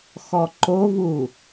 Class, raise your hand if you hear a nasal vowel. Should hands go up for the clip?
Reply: no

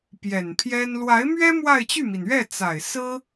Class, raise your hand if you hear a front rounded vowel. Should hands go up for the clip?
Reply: yes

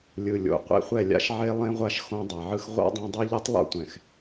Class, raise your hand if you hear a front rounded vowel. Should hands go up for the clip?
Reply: no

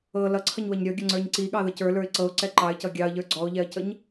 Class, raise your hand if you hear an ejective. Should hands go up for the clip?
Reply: no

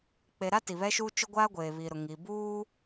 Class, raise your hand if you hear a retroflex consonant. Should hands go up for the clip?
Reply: no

